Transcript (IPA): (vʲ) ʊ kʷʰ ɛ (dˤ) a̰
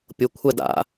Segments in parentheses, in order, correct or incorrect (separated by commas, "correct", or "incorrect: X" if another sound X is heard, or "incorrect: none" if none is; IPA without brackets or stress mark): incorrect: pʲ, incorrect: d